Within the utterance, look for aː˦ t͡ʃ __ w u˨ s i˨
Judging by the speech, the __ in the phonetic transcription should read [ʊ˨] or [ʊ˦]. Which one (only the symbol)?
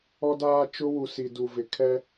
ʊ˦